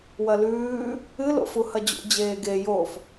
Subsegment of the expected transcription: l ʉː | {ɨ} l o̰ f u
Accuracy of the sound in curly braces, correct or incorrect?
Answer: correct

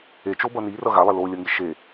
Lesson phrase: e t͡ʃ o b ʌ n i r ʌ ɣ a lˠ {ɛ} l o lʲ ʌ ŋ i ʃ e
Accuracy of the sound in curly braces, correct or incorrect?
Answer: incorrect: e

